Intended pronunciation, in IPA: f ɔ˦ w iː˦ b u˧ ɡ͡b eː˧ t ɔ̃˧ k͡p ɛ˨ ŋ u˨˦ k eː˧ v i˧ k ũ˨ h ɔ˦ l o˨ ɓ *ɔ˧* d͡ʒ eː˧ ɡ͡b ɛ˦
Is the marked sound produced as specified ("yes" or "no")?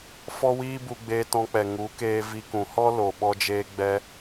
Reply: yes